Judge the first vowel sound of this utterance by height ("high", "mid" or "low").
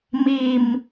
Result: high